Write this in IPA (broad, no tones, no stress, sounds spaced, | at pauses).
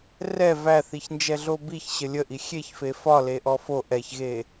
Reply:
r ɛ v æ θ i ç n d͡ʒ ɛ ɮ o b i ç ɕ ə lʲ ə ʔ i xʲ e ç f e f ɒ l e ʔ ɔ f o ʔ ɛ ç ɣ e